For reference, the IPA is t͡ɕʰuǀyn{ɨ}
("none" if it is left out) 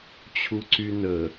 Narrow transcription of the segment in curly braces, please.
ə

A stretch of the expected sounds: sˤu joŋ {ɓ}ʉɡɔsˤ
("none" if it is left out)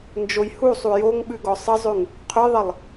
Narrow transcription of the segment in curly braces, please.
ɓ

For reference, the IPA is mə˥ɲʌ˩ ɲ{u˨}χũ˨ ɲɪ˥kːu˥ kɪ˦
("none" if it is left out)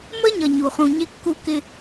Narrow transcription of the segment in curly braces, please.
u˩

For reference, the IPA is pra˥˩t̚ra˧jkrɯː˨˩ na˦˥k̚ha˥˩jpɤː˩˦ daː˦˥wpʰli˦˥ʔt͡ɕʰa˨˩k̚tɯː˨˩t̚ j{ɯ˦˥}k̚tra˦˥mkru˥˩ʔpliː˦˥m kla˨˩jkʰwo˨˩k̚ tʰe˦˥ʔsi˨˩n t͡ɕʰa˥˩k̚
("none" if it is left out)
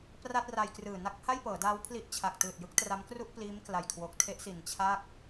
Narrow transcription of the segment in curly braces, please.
ɯ˦˥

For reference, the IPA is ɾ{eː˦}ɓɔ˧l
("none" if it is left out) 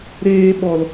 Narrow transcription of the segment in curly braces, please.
eː˦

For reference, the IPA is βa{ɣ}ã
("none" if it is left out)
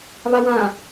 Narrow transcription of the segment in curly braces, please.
w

